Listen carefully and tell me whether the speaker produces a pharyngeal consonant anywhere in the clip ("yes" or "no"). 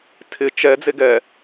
no